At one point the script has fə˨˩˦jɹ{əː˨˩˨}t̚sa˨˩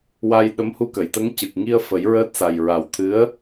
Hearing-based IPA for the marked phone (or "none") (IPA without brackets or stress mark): əː˦˥